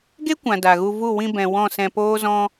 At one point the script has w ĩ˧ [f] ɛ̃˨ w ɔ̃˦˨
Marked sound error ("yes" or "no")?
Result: yes